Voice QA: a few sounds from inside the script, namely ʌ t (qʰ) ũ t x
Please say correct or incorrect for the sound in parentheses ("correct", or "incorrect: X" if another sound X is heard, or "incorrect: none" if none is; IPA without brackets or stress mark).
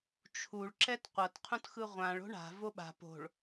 correct